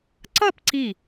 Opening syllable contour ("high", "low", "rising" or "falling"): falling